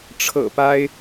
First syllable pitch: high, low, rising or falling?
low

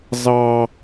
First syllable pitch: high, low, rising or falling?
high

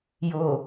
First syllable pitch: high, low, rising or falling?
low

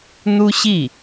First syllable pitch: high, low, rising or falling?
high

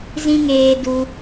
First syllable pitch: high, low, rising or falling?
high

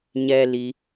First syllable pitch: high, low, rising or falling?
high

